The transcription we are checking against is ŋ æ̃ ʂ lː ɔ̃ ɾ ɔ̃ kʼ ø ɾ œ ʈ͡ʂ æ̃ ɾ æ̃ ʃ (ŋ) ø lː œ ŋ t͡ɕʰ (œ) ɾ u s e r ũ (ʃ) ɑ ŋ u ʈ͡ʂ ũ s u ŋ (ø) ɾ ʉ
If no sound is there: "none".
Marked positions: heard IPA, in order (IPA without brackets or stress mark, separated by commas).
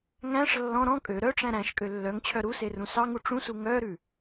kʼ, œ, s, œ